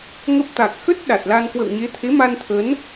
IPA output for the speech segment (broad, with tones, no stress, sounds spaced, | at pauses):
ŋ ə˦˥ p̚ t̪ a˨˩ k̚ x ə˦˥ t̚ ɗ a˨˩ t̚ l a˧ n k w ə̰˧˨ w ɲ e˨˦ t̪ʰ e˨˦ m a˧ n t̪ʰ ə˨˦ n